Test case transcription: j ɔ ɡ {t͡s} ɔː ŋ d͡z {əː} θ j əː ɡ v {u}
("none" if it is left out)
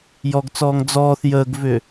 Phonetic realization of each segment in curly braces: t͡s, ɔː, ʏ

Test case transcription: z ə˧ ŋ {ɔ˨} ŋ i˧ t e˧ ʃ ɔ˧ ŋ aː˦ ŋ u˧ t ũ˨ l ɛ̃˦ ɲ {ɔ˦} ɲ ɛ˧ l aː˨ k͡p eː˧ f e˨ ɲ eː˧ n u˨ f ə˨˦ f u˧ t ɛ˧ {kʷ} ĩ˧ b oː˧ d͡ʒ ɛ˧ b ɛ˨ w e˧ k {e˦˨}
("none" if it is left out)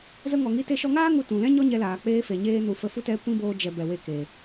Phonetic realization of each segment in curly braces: ɔ˨, ɔ˦, kʷ, e˨

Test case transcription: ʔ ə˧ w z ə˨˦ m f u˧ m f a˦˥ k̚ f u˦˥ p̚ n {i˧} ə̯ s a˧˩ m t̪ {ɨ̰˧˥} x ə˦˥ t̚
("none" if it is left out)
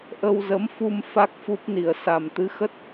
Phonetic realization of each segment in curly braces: i˧˩, ɨ˨˦

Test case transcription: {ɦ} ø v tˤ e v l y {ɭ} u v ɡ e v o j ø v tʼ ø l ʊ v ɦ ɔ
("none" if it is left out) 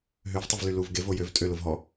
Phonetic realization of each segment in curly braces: ɦ, l

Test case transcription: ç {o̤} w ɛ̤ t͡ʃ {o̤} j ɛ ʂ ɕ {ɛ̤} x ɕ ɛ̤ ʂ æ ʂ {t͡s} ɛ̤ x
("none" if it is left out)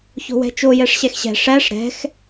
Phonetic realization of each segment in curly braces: o̤, o, ɛ, ɾ

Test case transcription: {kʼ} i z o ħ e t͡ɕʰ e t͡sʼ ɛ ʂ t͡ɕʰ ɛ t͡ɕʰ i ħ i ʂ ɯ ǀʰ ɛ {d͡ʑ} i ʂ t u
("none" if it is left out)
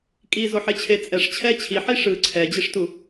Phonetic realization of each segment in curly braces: kʼ, d͡ʑ

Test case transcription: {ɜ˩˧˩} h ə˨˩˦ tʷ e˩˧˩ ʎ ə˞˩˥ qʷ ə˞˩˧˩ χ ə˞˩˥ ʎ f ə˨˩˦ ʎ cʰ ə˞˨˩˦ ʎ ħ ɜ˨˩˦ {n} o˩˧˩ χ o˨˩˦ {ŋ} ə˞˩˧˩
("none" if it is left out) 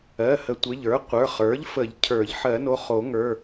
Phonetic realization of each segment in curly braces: ɜ˩˧˩, n, ŋ

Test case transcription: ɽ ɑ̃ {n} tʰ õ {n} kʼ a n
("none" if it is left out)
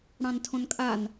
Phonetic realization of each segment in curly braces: n, n

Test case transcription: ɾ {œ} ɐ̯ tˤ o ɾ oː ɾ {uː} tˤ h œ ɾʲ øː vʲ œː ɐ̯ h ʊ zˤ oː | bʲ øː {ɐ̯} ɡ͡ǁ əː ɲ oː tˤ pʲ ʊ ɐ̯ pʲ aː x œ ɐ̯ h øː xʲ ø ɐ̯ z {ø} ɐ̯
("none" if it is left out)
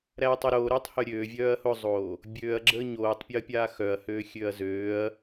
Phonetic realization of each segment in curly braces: æ, øː, ɐ̯, øː

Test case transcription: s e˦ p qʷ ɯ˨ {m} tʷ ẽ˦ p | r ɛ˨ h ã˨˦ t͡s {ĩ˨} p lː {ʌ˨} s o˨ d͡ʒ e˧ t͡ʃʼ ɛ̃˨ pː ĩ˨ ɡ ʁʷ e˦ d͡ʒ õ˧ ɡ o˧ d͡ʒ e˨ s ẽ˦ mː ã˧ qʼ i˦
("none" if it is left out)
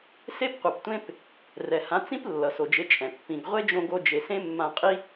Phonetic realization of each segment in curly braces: p, ĩ˦, ʌ˨

